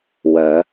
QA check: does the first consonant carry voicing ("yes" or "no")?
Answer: yes